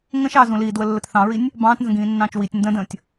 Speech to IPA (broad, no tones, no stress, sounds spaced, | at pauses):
ŋ ə̃ ʃ ɑː z ũ l iː d w ə lː ə t θ ɑ̃ ɹ i nʲ | b ɑ̃ː t n z ə̃ ɡ ĩː nː ɑ̃ː t͡ʃ w i tʲ n d ə̃ d ə̃ː tʲ